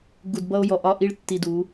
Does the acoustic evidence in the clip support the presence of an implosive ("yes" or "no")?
no